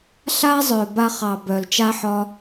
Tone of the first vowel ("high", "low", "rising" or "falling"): high